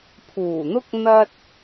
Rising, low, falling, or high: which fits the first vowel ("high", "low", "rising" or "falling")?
low